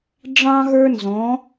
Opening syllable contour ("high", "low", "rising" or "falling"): high